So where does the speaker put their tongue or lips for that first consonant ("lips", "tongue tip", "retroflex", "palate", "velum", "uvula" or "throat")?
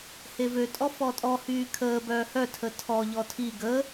throat